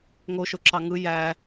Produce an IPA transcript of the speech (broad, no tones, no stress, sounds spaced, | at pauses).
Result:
ŋ o ʃ o ǁ ɑ ŋ ɯ j æ